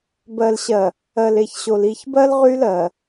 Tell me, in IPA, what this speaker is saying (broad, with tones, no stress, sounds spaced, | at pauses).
b ɜ˨ l ɕ ɜ˨ | ɜ˨ l e˨ ç ɕ o˨ l i˨ ç b ɜ˦ l ʁ y˦ l ɜ˨